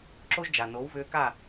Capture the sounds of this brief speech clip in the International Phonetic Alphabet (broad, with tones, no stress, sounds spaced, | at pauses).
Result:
ǁ o˦ ʒ d͡ʒ a˨ n o˨˦ w v ʏː˧ k a˦˨